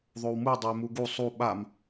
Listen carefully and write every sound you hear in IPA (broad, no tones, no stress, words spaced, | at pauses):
ðˤowmu dˤoɪ̯muɡu sˤu ɓam